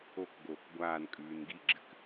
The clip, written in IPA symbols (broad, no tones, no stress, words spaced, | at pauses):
okɡoːk ɡʷaːn kʼʉːnɡiɡ͡ǁɨk